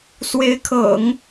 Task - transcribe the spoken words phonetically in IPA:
s w e˧˥ ɪ̯ kʰ ɤ̰˨˩˦ ŋ

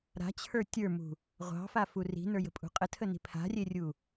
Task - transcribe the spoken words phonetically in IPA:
ɾ a̤ t͡ɕʰ ə˞ tʲ ə˞ m ṳ | ʁʷ ɑ̤ f a f u r i̤ n ə˞ j ə̤ pʼ ṳ qʼ ə tʰ ə n i̤ pʰ a̤ rʲ e rʲ u

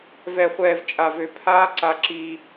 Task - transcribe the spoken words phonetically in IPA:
v ɛ˨ χʷ ɛː˨ v t͡ʃʼ a˨ v ø˨ pʰ aː˦ ǀ a˦ ǁ i˦

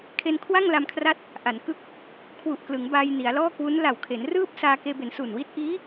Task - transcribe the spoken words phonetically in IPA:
kʰ e˧ n kʰ w a˥˩ ŋ l a˧ m kʰ r a˦˥ t̚ | ʔ a˩˦ n k ɯ˦˥ k̚ | kʰ w u˨˩ ʔ k l ɯ˩˦ ŋ b aː˧ j n i˩˦ a̯ l ɔː˥˩ k w u˦˥ n l a˨˩ w kʰ e˩˦ n r ɯː˥˩ p̚ s aː˧ k eː˧ b e˩˦ n s u˨˩ n w i˥˩ t̚ ʔ iː˦˥

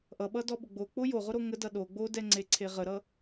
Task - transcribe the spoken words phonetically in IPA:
ʔ ʌ ɓ ʌ d ɔ ɓ ʊ ɡ͡b o k͡p o j o ʁ ʊ ɾ o ŋ ə d ʌ ɗ o ɡ͡b o d ɛ ŋ͡ǀ e ǀʰ e ʁ ə ɾ ʌ

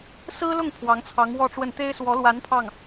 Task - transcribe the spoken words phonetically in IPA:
s ɹ̩˥ l ʊ˥˩ ŋ pʰ w ɑ˧˥ ŋ t͡sʰ ɑ˧˥ ŋ w ɔ˥˧ ʈ͡ʂ w ə˥˩ n t̪ e˥ ɪ̯ s w ɔ˧˥ l w a˧˥ n pʰ ɑ˥˩ ŋ

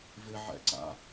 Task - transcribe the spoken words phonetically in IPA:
v ɪ ʕ ɛ̰ ǀ a̰

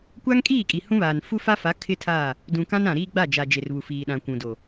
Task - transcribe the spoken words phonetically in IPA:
kʷ a˦ ŋ kʼ iː˦˨ kʼ i˨ h ũ˦ β aː˨ n f u˦ f a˦ f a˨˦ kʰ ɪ˦ tʰ a˦˨ | d ũ˨ k ã˦ n ã˨ ɾ iː˦ ɡ͡b a˦˨ d͡ʒ a˨ d͡ʒ e˨ r β u˨ f iː˨ ɗ ã˨ kʷ ũ˨ d o˨

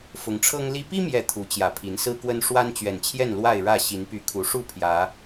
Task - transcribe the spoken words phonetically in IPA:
f ʊ˨˦ ŋ ʈ͡ʂʰ ɤ˦ ŋ l i˦ p i˦ m j ɛ˨˩ t̪ʰ u˨˦ t͡ɕ j ä˨˩ pʰ i˨˦ n s ɹ̩˦ k w ə˦ n ʂ w a˦ n t͡ɕ ɥ ɛ˨˩ n t͡ɕʰ j ɛ˥˨ n l w a˥˨ ɪ̯ ɻ ä˥˨ ɕ i˨˦ n p y˨˦ kʰ u˨˦ ʂ u˥˨ pʰ j ä˨˦

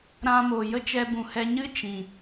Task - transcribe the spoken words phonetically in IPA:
ɾ ã˧ m oː˨ j ə˦ t͡ʃ ɛ˧ b ũ˨ h ɛ˧ ɲ ɨ˦ t͡ʃ ĩ˨

